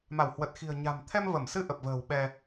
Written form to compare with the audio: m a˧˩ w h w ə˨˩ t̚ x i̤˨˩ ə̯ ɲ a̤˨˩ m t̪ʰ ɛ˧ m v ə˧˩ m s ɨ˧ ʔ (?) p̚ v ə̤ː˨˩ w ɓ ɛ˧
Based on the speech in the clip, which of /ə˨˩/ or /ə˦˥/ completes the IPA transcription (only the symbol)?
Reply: ə˨˩